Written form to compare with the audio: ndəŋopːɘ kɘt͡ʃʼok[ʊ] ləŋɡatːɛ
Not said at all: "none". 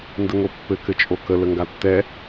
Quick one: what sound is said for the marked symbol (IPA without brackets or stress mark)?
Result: ə